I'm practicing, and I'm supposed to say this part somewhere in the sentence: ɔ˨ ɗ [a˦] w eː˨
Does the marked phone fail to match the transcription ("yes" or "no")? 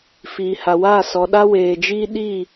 no